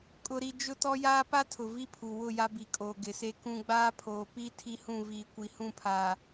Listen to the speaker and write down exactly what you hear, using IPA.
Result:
kʼʊ˦ɾi˦ d͡ʒʊ˦tɔ˦jaː˦ pa˦tʰʊ˨ vi˦pʰu˨ wʊ˦˨ ja˦bi˨kʼoː˨ ɡɪ˨se˦kũ˦ ɡ͡baː˦pʰoː˨pi˦ tʰi˦hũ˦˨viː˨ kʷi˨hũ˦˨pʰaː˨

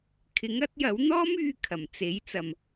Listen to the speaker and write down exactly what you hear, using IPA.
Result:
kʰɪ˨˥ŋɐ˨˥t̚jɐ˨˥w n̪ɔː˥myː˧kʰɐ˨˩m t͡se˨˥j t͡sɐ˨m

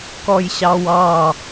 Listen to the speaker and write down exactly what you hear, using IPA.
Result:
kɔjɕɑwɑ

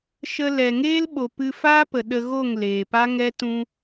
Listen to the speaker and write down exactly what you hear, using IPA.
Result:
ʃə˧lɛ˨ŋeː˦l ɓo˨ pɨ˧faː˦pə˨ ɗə˧ɣo˦˨ŋ leː˨pa˦ŋɛ˦ tũ˧

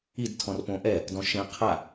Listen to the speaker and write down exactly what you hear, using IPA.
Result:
id tʰɔ̃rpõʔɛ | dɔ̃ʃẽ qʰa

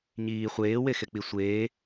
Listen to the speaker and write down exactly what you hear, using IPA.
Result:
ɲiː χʷeːwexek͡pi sʷeː

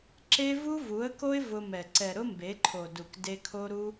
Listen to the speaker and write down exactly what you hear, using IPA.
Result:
ǁe˦ vu˦vu˨˦ə̯ko˦ɪ̯ vʊ˧mɛ˨ ǀɛ˨ɾʊ˦mbe˨˦ǃʰo˨ du˨k de˧kʰo˦ɾu˦

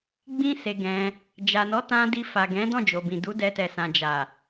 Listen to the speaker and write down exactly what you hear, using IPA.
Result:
ɡ͡bĩ˦se˧ɡɛ̃˧ | d͡ʒa˨nɔ˨˦tã˧ di˧fa˨ɡɛ̃˨˦ dɔ̃˦˨d͡ʒo˨bĩ˨ du˨˦dɛ˧tɛ˨sã˨ d͡ʒa˨

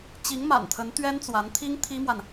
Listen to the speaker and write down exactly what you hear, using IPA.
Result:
t͡ɕi˧˥ŋma̰˨˩nt̪ʰə˧˥n t̪ɥɛ˥nt͡swa˧˥nt̪ʰi˥ŋ t̪ʰi˥mwa˨n

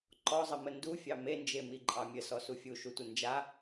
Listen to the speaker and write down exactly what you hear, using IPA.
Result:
ǃɔzˤəmə ndufʲɑ mend͡ʒemiǃʼɑ mʲəsɔsu fʲuʃutʷɘ nd͡ʒa

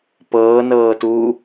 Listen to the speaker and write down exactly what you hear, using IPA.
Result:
pɤːnɤːtuː

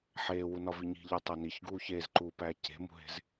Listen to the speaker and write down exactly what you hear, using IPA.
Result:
ħeːwunɒ viɲi̤ʎo tˤæniç ɡuːçeːzǃuːpæː ce̤mṳɦe̤z

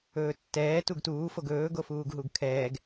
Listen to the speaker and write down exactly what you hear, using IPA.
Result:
ɵːtːɛː tuɡtuː foɡɵː ɡofuːɡɦuɡkʰɛːɡ

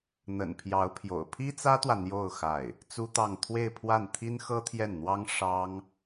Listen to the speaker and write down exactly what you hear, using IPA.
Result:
n̪ə̰˨˩npʰjɑ˧˥ʊ̯pʰjo̰˨˩ʊ̯ pʰi˥t͡sä˥t̪wä˨ n̪jo˥˧ʊ̯ xa˥˩ɪ̯ | t͡su˥t̪ɑ˥˧ŋ t̪ʰwe˥˧ɪ̯pʰwa˥˩nt̪ʰi˥n xɤ˥t̪ʰjɛ˥˩nn̪wɑ˥ŋ ʂɑ˥ŋ

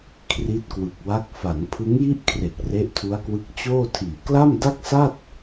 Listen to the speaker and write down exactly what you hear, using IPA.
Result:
kʰri˦˥t̚kwɯ˨˩k̚wa˦˥k̚ fa˩˦n pʰɯ˦˥ŋji˥˩ʔkʰre˨˩k̚ re˦˥ʔtʰu˦˥a̯kwɯ˦˥k̚ t͡ɕoː˥˩tʰiː˨˩ kla˥˩mda˥˩k̚sa˥˩t̚

